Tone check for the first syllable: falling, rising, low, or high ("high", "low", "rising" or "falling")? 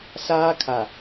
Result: high